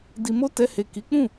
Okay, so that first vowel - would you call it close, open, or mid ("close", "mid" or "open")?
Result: close